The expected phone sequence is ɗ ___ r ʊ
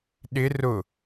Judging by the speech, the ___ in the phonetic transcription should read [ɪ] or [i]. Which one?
ɪ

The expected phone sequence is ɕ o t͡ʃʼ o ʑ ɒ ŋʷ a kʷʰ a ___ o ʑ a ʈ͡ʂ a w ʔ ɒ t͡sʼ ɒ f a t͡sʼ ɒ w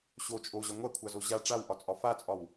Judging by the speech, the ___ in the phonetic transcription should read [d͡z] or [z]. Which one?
z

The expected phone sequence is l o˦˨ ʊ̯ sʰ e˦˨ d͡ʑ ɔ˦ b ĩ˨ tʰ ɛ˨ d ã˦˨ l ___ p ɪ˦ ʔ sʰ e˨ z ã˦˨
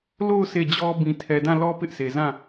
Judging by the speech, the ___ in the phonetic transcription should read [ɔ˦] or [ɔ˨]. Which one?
ɔ˦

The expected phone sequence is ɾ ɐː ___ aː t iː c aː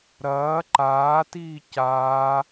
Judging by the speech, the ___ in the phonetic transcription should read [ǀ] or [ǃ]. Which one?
ǃ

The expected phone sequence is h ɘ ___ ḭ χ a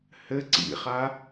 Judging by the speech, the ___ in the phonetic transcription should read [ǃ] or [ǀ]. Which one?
ǀ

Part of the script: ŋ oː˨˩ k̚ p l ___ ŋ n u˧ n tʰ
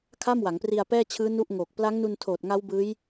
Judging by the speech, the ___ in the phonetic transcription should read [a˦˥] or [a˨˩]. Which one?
a˦˥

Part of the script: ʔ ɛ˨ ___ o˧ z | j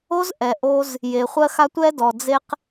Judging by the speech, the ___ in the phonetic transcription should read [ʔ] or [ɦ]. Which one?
ʔ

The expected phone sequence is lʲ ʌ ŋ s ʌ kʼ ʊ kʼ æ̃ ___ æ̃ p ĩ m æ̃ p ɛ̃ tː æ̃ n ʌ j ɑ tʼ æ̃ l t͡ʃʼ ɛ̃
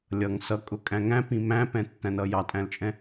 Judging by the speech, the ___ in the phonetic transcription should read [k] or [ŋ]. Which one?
ŋ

